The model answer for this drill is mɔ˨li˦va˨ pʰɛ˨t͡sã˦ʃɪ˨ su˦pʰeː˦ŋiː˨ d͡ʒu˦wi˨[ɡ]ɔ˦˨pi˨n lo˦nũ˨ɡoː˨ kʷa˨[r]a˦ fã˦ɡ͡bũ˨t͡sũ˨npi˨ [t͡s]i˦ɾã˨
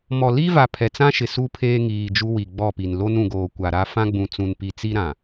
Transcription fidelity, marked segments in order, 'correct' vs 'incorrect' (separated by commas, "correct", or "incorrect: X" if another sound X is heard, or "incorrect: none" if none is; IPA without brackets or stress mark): incorrect: ɡ͡b, incorrect: ɾ, correct